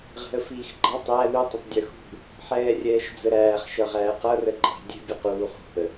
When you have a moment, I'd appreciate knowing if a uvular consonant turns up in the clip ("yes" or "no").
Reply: yes